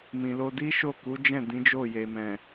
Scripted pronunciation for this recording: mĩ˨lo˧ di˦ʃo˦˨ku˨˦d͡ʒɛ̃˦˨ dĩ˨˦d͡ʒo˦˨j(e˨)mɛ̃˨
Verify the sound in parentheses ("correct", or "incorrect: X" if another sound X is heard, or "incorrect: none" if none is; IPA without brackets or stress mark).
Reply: correct